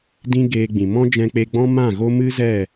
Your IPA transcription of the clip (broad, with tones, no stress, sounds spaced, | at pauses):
d ĩ˦ ɡ eː˧ ɡ͡b ĩ˨ m ɔ̃˦ d͡ʒ ɛ̃˧ k͡p e˧ ɡ͡b ɔ̃˦ m ã˦˨ ɣ o˦ m ɨ˦ z ɛ˦˨